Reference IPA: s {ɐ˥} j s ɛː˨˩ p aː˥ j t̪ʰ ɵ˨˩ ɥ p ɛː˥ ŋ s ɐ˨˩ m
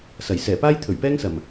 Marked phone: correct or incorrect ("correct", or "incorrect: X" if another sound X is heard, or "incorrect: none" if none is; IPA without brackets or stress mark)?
incorrect: ɐ˨˩